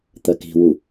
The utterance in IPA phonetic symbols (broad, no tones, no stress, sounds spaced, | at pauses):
t̪ ɜ k i̤ w u